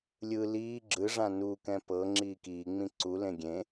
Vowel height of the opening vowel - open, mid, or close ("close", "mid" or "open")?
close